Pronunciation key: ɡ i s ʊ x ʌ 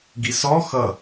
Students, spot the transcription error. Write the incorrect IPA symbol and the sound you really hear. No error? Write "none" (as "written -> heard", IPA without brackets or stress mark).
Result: ʊ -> ɔ